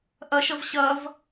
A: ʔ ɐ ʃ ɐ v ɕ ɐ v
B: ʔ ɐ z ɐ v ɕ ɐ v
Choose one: A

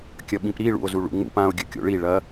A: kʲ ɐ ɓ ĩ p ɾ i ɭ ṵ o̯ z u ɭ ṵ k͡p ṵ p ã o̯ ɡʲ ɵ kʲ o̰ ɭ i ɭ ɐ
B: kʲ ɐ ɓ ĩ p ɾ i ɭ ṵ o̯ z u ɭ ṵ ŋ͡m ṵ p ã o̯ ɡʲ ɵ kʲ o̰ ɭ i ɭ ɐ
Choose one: B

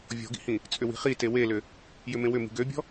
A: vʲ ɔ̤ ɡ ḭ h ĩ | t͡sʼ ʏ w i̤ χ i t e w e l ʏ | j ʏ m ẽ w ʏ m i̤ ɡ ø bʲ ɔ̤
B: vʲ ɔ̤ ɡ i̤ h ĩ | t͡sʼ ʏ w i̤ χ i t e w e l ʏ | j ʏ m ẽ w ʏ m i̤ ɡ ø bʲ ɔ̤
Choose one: A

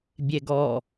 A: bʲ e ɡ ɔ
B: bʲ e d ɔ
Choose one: A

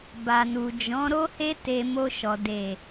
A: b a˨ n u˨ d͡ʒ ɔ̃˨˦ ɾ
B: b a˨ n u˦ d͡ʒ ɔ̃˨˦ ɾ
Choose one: A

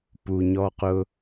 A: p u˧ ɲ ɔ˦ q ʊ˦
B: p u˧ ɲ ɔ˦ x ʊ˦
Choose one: A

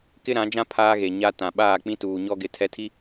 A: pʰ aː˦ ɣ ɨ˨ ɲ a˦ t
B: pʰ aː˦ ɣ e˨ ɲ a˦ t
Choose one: B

